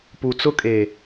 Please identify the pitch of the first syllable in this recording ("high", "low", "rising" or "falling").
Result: low